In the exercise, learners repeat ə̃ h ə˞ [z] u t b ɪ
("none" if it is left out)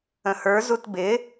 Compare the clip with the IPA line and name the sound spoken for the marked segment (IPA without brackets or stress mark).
z